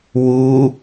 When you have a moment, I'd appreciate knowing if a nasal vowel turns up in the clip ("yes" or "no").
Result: no